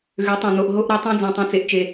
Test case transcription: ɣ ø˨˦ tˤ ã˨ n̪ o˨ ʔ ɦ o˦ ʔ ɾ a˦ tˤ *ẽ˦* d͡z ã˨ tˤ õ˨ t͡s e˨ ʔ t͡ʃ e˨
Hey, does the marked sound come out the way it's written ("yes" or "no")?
yes